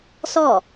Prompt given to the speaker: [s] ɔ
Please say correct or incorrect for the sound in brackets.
correct